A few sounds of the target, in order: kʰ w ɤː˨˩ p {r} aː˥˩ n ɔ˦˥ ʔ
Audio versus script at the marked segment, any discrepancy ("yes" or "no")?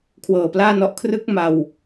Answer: yes